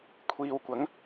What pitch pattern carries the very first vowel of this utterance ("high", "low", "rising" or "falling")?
low